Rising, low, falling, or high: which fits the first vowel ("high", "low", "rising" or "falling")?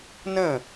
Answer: falling